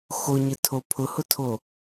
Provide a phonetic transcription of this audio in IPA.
x o ɲ ɪ tʰ o pʰ ʊ h ʊ tʰ o

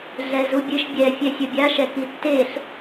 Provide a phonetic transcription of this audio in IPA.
ɮ ɛ z u bʲ ɨ ʃ bʲ ɛ fʲ ɛ sʲ ə bʲ a ʃ ɛ k i tː e ɬ

